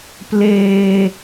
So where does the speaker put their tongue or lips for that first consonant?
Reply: lips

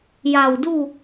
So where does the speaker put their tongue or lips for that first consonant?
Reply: palate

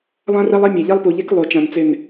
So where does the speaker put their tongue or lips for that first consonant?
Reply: tongue tip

